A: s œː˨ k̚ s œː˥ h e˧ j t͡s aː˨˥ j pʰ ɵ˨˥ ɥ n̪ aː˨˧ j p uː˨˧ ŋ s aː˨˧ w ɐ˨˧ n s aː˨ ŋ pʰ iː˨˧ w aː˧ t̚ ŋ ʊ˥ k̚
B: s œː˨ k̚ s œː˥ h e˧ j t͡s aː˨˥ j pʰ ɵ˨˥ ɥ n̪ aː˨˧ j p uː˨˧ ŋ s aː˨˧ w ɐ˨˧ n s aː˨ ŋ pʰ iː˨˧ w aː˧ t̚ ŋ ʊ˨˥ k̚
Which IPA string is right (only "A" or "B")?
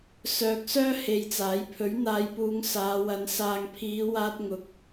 B